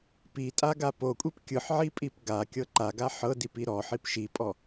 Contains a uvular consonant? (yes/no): no